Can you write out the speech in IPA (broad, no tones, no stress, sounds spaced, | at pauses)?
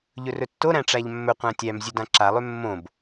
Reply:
ʎ ɵ r ɵ tː o ɾ æ̃ ʈ͡ʂ æ ʎ mː ɵ qʷ æ̃ tʲ æ m zʲ ø d ã ǁ a lˠ ø mː õ b